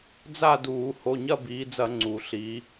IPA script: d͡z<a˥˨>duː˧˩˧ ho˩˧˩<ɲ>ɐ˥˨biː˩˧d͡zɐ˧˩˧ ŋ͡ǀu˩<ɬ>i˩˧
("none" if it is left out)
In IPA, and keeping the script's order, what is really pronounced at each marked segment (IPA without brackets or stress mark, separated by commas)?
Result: a˥˨, ɲ, ɬ